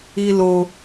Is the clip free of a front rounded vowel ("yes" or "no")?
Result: yes